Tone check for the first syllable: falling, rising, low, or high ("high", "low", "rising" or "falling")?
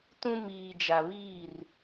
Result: high